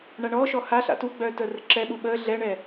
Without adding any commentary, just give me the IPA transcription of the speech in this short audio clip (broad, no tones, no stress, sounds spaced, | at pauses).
ɳ a ɳ ɔː ʃ ɔ h a ɬ a̰ t u ɡ͡b œː t əː r ə ǁ ɛ ɓ u ɓ əː ɮ ɛ ɳ ɛ